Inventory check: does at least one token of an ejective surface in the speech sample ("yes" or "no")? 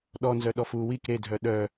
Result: no